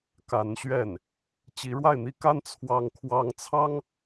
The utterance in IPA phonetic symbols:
ka˧˥nɕɥɛ˥˩n | t͡ɕi˧˥ɻwa˥˩ɪ̯n̪i˥ka˥n t͡sʰwɑ˥ŋ kʰwɑ˥ŋ t͡sʰɑ˥ŋ

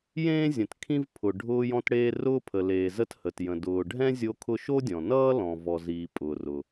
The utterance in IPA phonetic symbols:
jẽː˥zʲə̃˩t kʰĩ˥vpʰʊ˩ ɖʱʊː˥jɔ̃˥tɽeː˥ rʊː˥pʰə˩leː˩ zə˥thə˩tjə̃˩ dʊː˩ɖʱɛ̃˥ zʲo˥kʰʊ˥ ʃo˥dʲɔ̃˩nʌː˥ lɔ̃˩vɔ˩ziː˩ pʼʊː˩rʊ˩

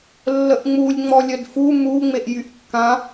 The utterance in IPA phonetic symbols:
lːəʔŋ͡mulʲ ŋ͡mɔlʲœdfu mu ŋ͡meʔjyʔkːã

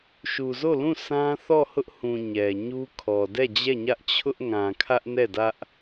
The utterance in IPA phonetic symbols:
ʃu˨zo˦˨lũ˦˨ sã˦ θɔ˦˨hʊ˦ʔhũ˨ ɲɛ˨ ɲu˦kʰɔ˨ dɛ˦˨d͡ʑɛ˦˨ɲä˦ʔ t͡ɕʰʊ˦ʔŋã˨ kʰä˦ʔnɛ˦˨dä˦ʔ

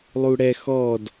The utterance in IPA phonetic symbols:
lˠuɽɛ xɔd

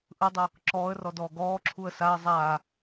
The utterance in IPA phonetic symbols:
ʔɯdˤɯ | ǁɔːə̯rɔdɔː ɡɔːǁʰuə̯ saə̯ zˤaː

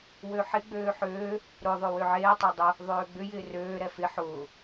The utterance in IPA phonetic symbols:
wøħɪ ɡ͡bøːħøː | ɾʊ ðˤøwøʕeː tˤødˤʊ | ðˤøːɡ͡bʏ jɪːrøː ɾɛfɪ ħʊː

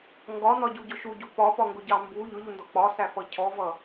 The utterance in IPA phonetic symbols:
ŋɡɒnɒɟuɟʊ ʃuɟu pɒpɒŋɡʊɟɑ mbu ʎʊʎundɔ k͡pɒsæfʌ cʰɔvʌ

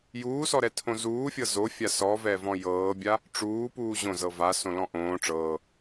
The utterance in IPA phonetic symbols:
juːsɔɾɛtʰõ zuːfʲɤ zofʲa sɔvɛvɔ̃ jɤːbʲa | ʈ͡ʂuːpuː ʑõzɤ vasõlɔ̃ ʔõː ʈ͡ʂɤː

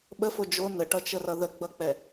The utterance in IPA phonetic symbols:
ɓəfo d͡ʒo nəʈʌt͡ʃərʌ ðəɡ͡bʌk͡pɛ

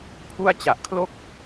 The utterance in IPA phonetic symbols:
pʰu˥˩a̯ t͡ɕa˨˩ʔkʰlo˥˩k̚

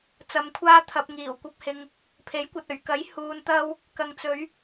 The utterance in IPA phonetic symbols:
t͡sɐ˨mkʷʰaː˧ t̪ʰɐ˨p̚ŋiː˨˩wkʷɐ˧p̚hɪ˨ŋ | pʰe˨˥jkʷɐ˨t̚ ɵ˨˩ɥkɐ˨˥jhuː˨n t̪ɐ˧w | kɐ˨ŋt͡sɵ˨˧ɥ

